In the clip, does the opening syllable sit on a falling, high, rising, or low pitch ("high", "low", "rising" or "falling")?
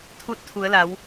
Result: rising